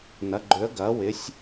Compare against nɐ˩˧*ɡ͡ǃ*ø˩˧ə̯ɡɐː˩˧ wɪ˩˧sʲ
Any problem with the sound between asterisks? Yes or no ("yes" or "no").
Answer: no